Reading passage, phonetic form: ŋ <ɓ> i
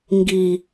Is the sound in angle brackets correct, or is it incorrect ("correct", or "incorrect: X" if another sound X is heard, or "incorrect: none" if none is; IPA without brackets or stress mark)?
incorrect: ɡ